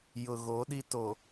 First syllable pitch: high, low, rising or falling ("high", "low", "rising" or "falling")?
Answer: low